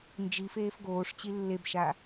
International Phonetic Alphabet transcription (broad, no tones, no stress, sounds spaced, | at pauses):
n d͡ʒ i f eː f ɡ oː ʂ t͡ɕ i lː e b ʃ a